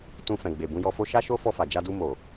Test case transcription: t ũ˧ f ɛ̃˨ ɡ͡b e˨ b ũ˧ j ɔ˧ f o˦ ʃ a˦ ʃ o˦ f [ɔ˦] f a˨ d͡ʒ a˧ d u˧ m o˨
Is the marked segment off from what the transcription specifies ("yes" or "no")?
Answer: yes